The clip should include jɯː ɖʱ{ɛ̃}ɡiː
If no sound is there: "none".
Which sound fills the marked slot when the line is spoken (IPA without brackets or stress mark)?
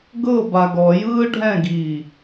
ɛ̃